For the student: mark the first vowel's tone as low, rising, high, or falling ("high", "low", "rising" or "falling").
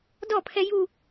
falling